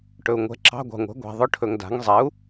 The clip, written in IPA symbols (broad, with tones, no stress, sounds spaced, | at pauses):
ʈ ɵ˨ u̯ ŋʷ ɛ̤˩˥ ǁ ɑ̤˧˥˧ ɡʷ ɑ̤˨ ŋʷ ɛ̤˩˥ ɡʷ a̤˨ ðˤ ʊ˧˥˧ ʈʰ ɵ˨ ŋ d a̤˩˥ ŋ zˤ ɛ˩˥ u̯